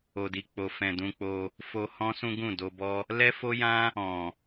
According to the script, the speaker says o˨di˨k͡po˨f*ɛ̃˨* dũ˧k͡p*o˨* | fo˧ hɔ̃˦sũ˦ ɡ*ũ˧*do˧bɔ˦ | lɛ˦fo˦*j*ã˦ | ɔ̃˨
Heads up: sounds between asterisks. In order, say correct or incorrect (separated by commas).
correct, incorrect, incorrect, correct